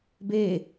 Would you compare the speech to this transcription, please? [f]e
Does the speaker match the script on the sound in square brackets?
no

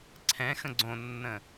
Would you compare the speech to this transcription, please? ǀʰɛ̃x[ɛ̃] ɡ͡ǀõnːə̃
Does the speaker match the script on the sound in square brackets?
no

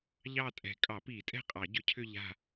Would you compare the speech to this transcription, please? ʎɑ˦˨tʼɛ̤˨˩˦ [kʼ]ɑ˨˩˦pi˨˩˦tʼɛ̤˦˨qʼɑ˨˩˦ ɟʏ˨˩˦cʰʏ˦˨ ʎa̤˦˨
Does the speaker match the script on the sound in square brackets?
yes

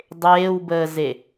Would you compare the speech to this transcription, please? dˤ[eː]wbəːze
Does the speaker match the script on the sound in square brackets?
yes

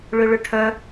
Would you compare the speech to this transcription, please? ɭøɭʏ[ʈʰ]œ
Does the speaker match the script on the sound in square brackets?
yes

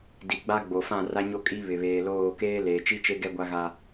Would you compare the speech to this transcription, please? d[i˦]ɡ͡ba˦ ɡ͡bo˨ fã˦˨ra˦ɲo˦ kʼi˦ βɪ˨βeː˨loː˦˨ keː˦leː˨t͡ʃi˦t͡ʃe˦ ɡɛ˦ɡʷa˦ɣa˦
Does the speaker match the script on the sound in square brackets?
no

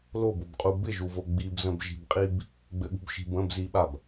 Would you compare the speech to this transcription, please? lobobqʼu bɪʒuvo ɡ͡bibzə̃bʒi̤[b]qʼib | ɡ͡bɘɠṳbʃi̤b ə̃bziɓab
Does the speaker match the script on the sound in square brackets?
yes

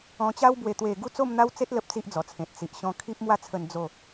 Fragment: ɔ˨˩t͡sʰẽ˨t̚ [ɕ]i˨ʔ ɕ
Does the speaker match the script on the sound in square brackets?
no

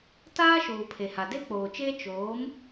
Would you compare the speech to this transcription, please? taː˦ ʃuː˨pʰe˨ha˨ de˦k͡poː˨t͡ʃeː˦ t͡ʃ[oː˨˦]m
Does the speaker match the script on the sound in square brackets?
yes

